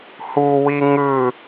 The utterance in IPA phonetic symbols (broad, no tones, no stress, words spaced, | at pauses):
huwi ŋɯ